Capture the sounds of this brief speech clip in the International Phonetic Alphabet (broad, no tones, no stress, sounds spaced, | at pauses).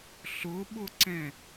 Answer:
ɬ ʊ ɓ ʊ ǀ ɛ̃